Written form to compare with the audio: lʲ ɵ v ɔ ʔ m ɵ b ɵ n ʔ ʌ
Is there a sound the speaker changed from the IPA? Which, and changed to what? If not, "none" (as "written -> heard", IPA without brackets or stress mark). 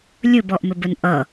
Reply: v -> b